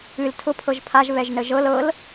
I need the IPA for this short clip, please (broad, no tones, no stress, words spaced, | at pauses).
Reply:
ɨl tʰʊpʰɤʒ pʰaʒ βɛʒnəʒɤl ɤl